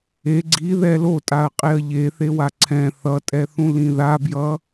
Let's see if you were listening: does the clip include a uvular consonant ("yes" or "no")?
yes